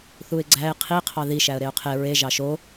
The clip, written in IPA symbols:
θ u ɪ̯ ɡ͡ǀ æ ɪ̯ qʰ i qʰ ɑ ð i ʃ æ ə̯ ɾ e ʊ̯ qʰ e ɹ e ʒ ɑ ʃ o

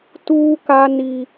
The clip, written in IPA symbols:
t uː˦ k a˦ n i˦

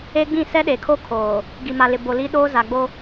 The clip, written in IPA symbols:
e˦ ɡ͡b ĩ˦˨ s ɛ˦ ɗ e˨ kʰ o˦ kʰ oː˨ | ɡ i˨ m a˨ l ɪ˨ b o˨ l i˦ ɗ oː˦ z a˨ ɡ͡b o˦

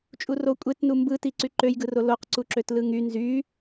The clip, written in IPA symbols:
t͡ʃʼ u r o kʷʼ e t n u m b ɯ t i ǀ y ǃ ø j ɡ ɯ r o l o q ǀ u ǁ ø t l ɯ ŋ y n z y

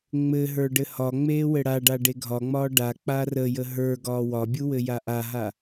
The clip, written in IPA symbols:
ŋ͡m ɘ ɦ ə˞ ɖ ɘ h ɒ ŋ͡m eː w ɘ ɽ a ɖ a ɖ e ɡʱ ɒ ŋ͡m ɒː ɖ a k͡p a r ə j ə ɦ ə˞ ɡ ɒː w ɒ bʲ u w ɘ j a ʔ a ɦ a

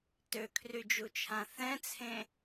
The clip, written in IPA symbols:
t ø kʰ r y d͡ʒ u t͡ʃʰ ã θ ɛ̃ t͡sʰ ẽ

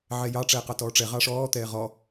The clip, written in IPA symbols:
ʕ ɛ j ɑ ʈ͡ʂ ɛː q ɑ t ɔː ʈ͡ʂ ɛ ʁ ɑ ʂ ɔː t̪ ɛː ʁ ɔ

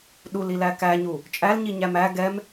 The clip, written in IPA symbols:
ɗ u l i l æ k æ ɲ u | t͡ʃʼ æ l ɲ i ɲ æ m æ ɡ ɛ m

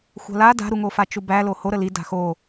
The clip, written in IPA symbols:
xʷ a̤ l a d a̤ ɾ u ŋ o f a t͡ʃ u b æ l o h o ɾ ə l i d a̤ x o

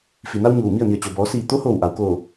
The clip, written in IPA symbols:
f i˩ n a˧ w ɲ uː˧˩ m i˥˨ ə̯ n i˩ ə̯ t͡ɕ o˩ b ɔː˩˧ s iː˧˩ t̪ o˧˥ h oː˧˩ w ʔ a˩ w k oː˧˩

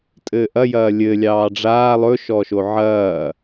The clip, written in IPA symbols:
tʼ ɘː ʔ ɐ j ɐː lʲ ɘ lʲ ɑː ɖ͡ʐ aː lˠ ɵ ʃ ɔ ʃ o ʕ ɐː

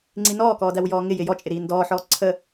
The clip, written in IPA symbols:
ŋ͡ǀ i n ɔː k ɔː d æ w j ɔː ŋ ɪ j ɪ j ɔ t͡ʃʼ ɪ ɾ iː n d ɔː ħ ɔː ǀʰ ə

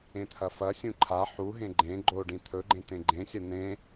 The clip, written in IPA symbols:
ẽ t̪ʰ ɐ f ɐ sʲ ũ ǃʰ a ħ u ɦ ẽ ɡ͡ǃ ẽ ɡ͡ǃ o ɖ ĩ t̪ʰ ɵ ɡ͡ǃ ẽ t̪ ẽ ɡ͡ǃ ẽ sʲ ɐ n̪ ẽ

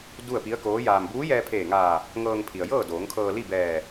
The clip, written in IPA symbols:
d u˥˨ ə̯ p i˧˥ ə̯ k oː˧˥ j aː˧ m b uː˧˥ j ɛː˧ pʰ eː˧˩ ŋ aː˧˩ | ŋ ɤː˧ ŋ pʰ i˩ ə̯ j ɤː˥˨ d oː˩˧ ŋ kʰ ɤː˧ l i˥˨ b ɛː˧˩

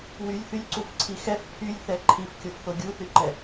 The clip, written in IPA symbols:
w y lʲ θ y lʲ ǀ u f ǀʰ i x ɛ f pʰ y lʲ θ ɛ ǃʰ i f kʲ o f θ o ɡʲ u θ y ǃ ɛ

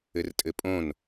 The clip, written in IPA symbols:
ɘ r tʼ ɘ pʼ õ n

